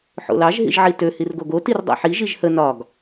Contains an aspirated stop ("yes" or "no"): no